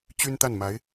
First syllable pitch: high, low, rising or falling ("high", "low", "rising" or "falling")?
high